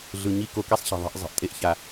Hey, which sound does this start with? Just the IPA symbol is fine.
ɮ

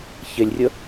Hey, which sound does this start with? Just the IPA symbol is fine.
ç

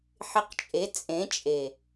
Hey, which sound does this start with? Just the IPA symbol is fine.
ħ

